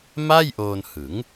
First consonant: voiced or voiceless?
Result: voiced